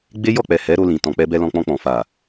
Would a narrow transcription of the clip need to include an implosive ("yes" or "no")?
no